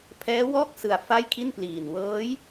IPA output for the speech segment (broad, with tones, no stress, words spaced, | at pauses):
pʰɛː˦˥wɔː˥˩k̚sɯ˨˩a̯ fa˥˩jkʰi˥˩npliː˨˩n wɤː˦˥j